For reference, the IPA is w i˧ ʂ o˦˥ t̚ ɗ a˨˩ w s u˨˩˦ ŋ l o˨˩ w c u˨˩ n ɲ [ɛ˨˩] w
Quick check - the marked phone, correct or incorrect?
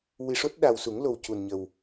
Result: incorrect